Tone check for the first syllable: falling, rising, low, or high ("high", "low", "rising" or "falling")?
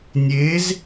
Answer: rising